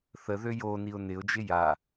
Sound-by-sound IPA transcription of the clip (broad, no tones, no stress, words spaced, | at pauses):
θəðø joniʊ̯ nɪʊ̯d͡ʒɪ ja